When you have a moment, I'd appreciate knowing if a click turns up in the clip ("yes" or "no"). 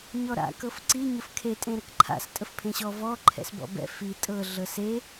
yes